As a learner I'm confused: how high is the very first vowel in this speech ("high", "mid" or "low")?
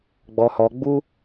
mid